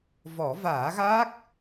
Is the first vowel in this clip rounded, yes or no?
yes